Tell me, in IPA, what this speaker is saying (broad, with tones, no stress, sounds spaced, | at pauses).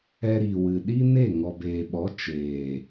ɛ˧ ɾ iː˨ w ɨ˨ ɗ i˦ n e˦˨ ŋ ɔ˨ b eː˨ ɓ ɔ˨˦ t͡ʃ eː˨